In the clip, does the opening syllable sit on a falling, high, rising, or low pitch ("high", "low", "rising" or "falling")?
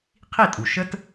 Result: falling